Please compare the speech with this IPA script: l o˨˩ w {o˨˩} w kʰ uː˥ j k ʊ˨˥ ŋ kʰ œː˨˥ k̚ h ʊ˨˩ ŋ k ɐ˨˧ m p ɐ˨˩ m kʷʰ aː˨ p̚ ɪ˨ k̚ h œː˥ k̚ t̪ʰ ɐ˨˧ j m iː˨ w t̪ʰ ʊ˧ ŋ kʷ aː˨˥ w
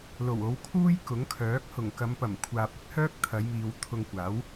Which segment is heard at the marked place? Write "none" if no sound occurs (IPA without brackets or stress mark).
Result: o˨˧